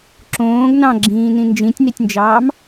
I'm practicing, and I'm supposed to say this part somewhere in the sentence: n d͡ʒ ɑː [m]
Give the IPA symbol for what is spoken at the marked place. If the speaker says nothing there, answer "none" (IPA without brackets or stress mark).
m